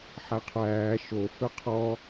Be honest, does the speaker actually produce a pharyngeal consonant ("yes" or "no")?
yes